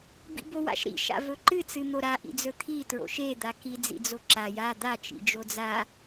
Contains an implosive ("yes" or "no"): no